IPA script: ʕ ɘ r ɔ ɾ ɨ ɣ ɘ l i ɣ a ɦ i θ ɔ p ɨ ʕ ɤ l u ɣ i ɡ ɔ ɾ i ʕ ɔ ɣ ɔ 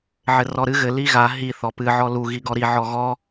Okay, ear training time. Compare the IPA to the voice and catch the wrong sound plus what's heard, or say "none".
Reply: ɤ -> ɔ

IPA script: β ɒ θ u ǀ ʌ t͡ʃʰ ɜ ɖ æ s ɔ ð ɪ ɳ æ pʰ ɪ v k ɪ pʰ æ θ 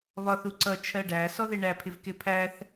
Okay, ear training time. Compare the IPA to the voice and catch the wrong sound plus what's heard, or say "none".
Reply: none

